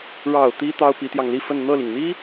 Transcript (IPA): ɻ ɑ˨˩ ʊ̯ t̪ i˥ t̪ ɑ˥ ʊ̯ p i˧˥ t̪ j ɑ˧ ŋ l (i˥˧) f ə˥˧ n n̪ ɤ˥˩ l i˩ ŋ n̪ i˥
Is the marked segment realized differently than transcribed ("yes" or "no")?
no